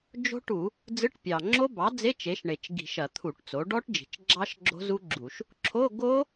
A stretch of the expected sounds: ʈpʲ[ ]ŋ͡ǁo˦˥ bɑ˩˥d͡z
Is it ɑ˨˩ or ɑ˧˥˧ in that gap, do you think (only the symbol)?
ɑ˨˩